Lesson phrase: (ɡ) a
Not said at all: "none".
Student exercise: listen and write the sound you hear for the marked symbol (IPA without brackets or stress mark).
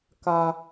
k